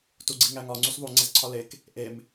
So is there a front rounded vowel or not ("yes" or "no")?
no